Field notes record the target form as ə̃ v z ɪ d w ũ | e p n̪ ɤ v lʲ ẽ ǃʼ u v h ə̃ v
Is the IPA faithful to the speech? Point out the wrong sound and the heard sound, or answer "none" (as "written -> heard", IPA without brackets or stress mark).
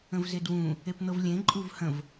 none